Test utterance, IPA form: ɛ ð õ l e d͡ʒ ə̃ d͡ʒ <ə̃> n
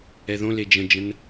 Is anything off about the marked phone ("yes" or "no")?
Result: no